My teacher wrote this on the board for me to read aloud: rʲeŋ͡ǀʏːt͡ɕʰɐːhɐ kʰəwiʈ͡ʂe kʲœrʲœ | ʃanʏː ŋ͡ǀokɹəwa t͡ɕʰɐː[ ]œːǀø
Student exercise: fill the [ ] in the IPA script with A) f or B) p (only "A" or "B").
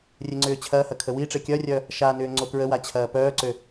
B